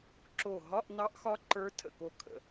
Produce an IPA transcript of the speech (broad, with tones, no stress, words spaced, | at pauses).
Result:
ǁo˧˩ ɦɒ˧˥˧ʔnɑ˧˥ʔxɒ˧˥ ǃə˞˧˥ tʰə̰˧˩ko˧˩ kʰə̰˧˩